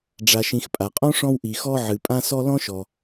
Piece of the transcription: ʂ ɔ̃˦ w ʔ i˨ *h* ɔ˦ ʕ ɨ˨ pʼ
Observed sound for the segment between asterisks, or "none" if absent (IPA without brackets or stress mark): x